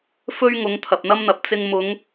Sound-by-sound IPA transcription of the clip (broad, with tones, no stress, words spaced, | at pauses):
fɵ˥ɥŋʊ˨˧ŋ t̪ʰɐ˨p̚n̪ɐ˥mn̪ɐ˨p̚ t͡sɪ˧ŋmʊ˨˧ŋ